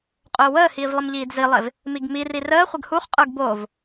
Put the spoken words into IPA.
qʼ ʊː w əː h iː v lˠ ə m ʎ iː d z i lˠ e v | m i ɡ m i r i r əː χʷ ə ɡ h u χ qʼ ə˞ ɡ b o v

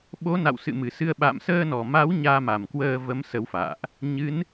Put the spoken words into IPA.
ɓ o˨˦ n a̰˧˨ w s ɨ̰˧˨ m ɨ˨˩ s ɨ˧ ə̯ ɓ a̰˧˨ m s əː˧ n ɔ˨˩ m a˨˦ w ɲ aː˧ m a˨˩ m k w əː˧ v ə˨˦ m s ə˨˦ w f a̰ː˧˨ ʔ | ɲ ɨ˨˦ n

